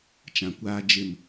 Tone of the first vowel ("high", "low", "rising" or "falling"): low